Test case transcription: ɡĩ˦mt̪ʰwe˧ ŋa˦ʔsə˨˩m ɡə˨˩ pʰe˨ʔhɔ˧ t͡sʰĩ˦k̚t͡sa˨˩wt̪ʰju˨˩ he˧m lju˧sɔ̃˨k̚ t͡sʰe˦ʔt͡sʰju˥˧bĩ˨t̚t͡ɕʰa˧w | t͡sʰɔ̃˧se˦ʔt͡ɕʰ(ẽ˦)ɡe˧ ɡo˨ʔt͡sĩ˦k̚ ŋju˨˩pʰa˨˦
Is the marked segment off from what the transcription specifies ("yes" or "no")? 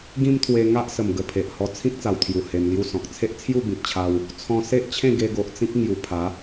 yes